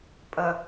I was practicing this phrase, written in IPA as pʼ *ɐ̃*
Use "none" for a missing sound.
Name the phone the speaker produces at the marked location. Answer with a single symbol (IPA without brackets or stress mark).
ɐ